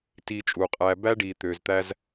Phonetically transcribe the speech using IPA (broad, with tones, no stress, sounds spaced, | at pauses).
t iː˧ t͡ʃʼ uː˨ qʼ æː˧ b æ˦ ɖ iː˨ t̪ ø˨ z t̪ æ˧ z